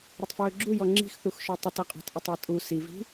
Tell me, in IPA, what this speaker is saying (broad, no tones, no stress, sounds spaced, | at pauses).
ɾ ə tˤ f ɹ ɵ ɡ͡ǁ u j ɔ ŋ͡ǁ i̤ x θ u x ʃ ɔ tˤ ə t ʌ qʼ ɔ̤ t ʔ ɪ tˤ a tʼ u s i v i̤